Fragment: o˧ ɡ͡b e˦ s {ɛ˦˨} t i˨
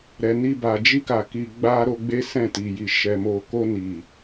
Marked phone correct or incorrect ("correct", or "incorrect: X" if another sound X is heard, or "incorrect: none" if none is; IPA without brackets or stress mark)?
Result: incorrect: ɛ̃˦˨